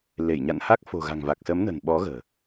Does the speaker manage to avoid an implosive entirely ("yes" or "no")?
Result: no